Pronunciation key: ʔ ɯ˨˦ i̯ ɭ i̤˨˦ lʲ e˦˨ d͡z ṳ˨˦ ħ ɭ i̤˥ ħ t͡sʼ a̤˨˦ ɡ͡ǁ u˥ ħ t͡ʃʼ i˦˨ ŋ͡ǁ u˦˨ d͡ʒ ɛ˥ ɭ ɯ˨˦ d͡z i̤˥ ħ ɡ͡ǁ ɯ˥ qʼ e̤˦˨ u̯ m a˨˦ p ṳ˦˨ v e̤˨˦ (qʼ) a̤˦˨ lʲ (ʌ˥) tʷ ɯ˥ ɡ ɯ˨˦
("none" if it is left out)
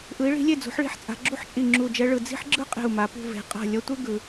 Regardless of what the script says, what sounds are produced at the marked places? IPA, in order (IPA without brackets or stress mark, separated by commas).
qʼ, ʌ˥